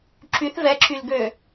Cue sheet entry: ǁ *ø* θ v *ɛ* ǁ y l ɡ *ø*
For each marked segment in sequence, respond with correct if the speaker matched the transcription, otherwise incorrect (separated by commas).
incorrect, correct, correct